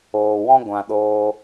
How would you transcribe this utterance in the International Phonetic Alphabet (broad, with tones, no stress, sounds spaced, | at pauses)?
oː˨ w ɔ̃˦ ɡʷ ã˨ ɗ oː˧